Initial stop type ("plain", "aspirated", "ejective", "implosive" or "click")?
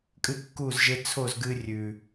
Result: ejective